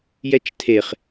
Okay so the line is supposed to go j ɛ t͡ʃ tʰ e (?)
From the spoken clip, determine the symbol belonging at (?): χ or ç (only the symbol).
χ